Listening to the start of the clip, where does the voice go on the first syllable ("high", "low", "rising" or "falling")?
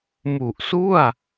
low